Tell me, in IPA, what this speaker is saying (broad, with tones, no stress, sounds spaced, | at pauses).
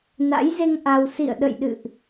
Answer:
n a̰˧˥ j z e˧ ŋ ʔ a˧ w s ḭ˧˨ ə̯ ɗ ə̰˧˨ j ɗ ɨ̰˧˨ ʔ